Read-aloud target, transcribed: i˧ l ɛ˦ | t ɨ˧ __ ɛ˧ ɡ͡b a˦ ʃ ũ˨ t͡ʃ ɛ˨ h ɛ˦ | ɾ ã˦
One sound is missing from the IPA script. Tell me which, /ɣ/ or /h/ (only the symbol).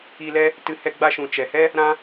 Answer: h